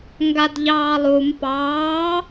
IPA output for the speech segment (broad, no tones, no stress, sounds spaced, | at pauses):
ŋ ɡ a d ʎ ɑː lˠ u m p ɑː